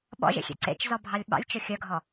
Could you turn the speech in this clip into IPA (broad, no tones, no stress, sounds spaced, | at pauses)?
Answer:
ɓ ɔ̰ ʒ ḛ xʲ ḛ ǀ ḛ t͡ʃ z ɔ bʱ ɑ lʲ ɓ ɑ̰ lʲ t͡ʃ ɵ xʲ œ ɡʱ ɔ